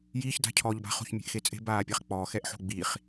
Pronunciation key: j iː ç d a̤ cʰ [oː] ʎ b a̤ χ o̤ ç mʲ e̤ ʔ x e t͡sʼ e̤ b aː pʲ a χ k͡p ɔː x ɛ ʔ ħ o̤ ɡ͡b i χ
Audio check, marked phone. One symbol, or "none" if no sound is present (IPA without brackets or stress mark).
ɔː